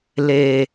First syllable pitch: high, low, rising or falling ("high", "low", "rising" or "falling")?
low